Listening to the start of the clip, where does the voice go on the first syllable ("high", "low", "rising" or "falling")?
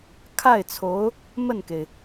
falling